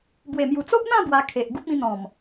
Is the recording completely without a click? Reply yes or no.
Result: yes